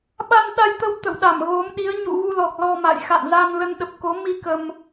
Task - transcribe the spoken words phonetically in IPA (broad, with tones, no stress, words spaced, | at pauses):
ɓa˧nɗa˧jt̪ə˧w t̪ə̰˧˨wɗa˧˩mɣo˨˦mɗi˨˦ə̯ ɲṵ˧˨ ɣu˧lɔ˨˩k̚ lɔ˧ma̰˧˨j xa̰˧˨nza˧n lə˧nɗə˨˩p̚ko˨˦ mi˧ kə˧m